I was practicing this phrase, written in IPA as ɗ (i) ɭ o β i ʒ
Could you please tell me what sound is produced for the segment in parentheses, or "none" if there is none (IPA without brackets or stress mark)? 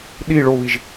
i